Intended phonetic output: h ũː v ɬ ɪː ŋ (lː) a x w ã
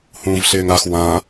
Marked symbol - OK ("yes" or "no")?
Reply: no